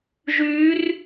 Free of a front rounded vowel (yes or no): no